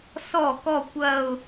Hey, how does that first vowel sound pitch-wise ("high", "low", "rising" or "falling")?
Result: falling